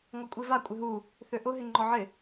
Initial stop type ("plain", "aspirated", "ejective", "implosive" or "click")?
ejective